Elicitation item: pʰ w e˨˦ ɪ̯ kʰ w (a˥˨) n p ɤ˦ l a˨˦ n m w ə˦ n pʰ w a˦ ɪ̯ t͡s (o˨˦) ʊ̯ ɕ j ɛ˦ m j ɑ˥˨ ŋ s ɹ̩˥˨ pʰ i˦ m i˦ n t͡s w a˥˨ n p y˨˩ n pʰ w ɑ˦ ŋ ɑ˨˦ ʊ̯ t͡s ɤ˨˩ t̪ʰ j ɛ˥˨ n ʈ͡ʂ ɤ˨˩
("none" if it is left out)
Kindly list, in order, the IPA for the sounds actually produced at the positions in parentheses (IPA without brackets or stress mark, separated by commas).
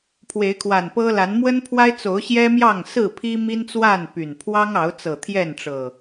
a˨˩, o˨˦